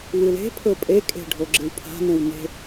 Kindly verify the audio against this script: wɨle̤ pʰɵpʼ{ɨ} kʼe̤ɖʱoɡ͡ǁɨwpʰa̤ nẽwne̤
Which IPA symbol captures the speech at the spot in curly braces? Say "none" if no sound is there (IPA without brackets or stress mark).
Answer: e